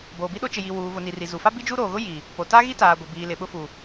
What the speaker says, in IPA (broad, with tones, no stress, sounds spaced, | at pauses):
b oː˨ b i˦ ɗ o˦ t͡ʃ ɪ˨ j i˨ w uː˨ v ʊ˨ n i˨ r i˨ z u˨ f a˦ b i˦ d͡ʒ u˦ ɾ oː˨ ɣ ʊ˦ j i˨ | p o˨ t a˦ ɣ i˦ t aː˨ ɡʷ ɪ˨ b iː˨ l ɪ˨ ɓ ʊ˦ f u˨